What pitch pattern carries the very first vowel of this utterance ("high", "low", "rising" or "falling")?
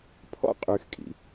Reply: high